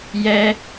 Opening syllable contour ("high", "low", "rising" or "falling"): high